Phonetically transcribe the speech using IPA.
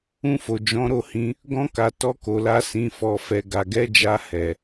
ũ˧ f o˨ d͡ʒ ɔ̃˨˦ ɾ o˦˨ h ĩ˧ | ɡ ɔ̃˧ k a˨ t ɔ˧ k o˨ l a˧ s ĩ˨ f ɔ˨ f ɛ˨ ɡ a˨ ɡ ɛ˨˦ d͡ʒ a˧ h ɛ˨

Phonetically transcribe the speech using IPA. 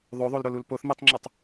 ðˤ o ðˤ o l ɾ o l u l p o θ m i tˤ ŋ͡ǁ u tˤ

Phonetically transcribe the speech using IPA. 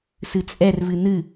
s ɨ t͡sʼ ɛ r v ɨ n ɨ

